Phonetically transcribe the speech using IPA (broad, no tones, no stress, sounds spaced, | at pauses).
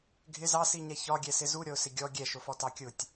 ɡʱ ɪ z ɑ s i ɲ ɛ ç ɒ ɡʲ ɛ s ɪ z u ɾʲ ɔ ʊ̯ s ɪ ɡʲ ɔ ɡʲ ɛ ʃ ʊ f ɔ t ɑ kʲ ʊ tʲ